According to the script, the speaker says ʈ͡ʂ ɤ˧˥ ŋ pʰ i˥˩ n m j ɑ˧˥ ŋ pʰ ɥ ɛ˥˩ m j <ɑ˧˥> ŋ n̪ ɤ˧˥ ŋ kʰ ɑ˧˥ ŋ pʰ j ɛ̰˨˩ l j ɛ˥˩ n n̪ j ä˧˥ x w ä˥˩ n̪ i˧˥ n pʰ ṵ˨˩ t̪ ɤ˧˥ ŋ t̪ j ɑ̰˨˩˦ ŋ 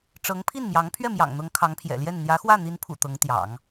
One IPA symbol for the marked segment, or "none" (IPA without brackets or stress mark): ɑ̰˨˩